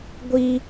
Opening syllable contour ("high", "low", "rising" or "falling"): high